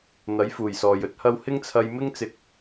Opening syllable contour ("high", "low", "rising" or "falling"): rising